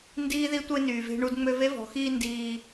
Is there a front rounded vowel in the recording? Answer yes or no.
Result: yes